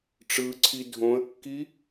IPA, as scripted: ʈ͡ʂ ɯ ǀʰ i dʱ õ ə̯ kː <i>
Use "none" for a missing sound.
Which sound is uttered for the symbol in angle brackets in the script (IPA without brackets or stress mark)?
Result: i